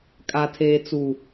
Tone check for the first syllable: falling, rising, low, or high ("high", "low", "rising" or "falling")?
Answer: low